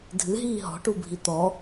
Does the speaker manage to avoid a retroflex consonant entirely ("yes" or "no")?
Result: no